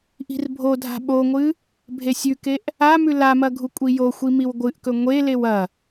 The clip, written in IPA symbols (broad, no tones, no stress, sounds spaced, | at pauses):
ʔ i̤ r bʱ o dʱ a̤ ɓ o ŋʷ ɨ | bʱ e sʲ ʉ k e ʔ | a m ʉ l a m ɐ ɡʱ u kʷʼ i j o xʷ i m i w ɡʷ ɨ ʔ k ɵ ŋʷ e l e w ɐ